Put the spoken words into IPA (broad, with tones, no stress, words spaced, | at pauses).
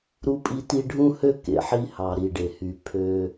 ɾu˦pʼi˦ti˦ ɖʱũ˦hø˦ kḛ˨ħi˦hɑ˨ ɾi˨ ɖe˨hy˨ pʰø˦